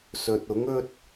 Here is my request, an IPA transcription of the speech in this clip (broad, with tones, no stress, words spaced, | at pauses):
sɵ˨t̚ ʊ˨˥ŋɵ˥t̚